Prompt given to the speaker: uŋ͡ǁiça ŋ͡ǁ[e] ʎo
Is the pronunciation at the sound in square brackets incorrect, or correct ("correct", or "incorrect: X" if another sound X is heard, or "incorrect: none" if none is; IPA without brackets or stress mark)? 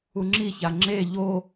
correct